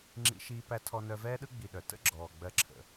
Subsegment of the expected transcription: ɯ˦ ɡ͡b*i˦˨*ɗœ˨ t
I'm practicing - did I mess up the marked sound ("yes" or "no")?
yes